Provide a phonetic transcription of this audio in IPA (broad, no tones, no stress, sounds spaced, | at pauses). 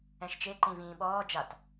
ɛ̃ ʃ t͡ʃ e ǃ ĩ v ĩː ɓ ɔː d͡ʒ a t